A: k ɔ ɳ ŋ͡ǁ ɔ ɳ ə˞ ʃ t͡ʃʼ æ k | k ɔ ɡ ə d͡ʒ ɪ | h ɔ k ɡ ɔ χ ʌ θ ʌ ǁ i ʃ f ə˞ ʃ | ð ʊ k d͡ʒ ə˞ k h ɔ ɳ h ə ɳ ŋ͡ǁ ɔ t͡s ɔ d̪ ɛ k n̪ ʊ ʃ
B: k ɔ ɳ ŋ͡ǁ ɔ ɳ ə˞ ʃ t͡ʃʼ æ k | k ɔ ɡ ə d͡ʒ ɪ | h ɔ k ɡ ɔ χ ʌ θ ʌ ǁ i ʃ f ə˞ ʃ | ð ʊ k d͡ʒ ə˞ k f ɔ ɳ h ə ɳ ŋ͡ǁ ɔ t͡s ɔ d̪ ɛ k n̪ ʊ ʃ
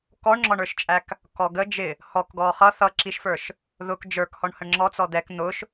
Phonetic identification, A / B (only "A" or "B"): A